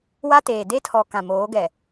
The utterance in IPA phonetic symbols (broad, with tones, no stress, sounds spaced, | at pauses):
w a˦ t eː˨ d e˦ tʰ ɔ˨ k ã˨ m oː˨˦ ɡ ɛ˨